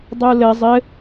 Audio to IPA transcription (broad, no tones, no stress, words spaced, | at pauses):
dˤulɘ zˤɘ